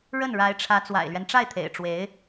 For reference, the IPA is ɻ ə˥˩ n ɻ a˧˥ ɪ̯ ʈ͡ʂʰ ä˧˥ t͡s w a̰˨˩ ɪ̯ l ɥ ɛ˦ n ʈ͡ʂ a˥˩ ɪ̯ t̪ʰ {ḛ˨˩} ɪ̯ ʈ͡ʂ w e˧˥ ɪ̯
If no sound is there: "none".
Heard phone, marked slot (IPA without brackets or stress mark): ḛ˨˩